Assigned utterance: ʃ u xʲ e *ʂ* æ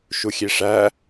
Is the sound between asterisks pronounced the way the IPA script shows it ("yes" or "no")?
yes